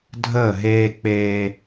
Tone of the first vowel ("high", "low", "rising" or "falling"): falling